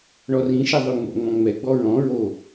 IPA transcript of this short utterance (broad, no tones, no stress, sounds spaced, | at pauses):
ɳ ɔ r ĩ ʃ ɪ ðˤ ʉ ŋ͡m o̰ ŋ͡m ɔ̃ ŋ͡m ɛ ɡ͡b ɔ ɹ ɔ̃ ɹ o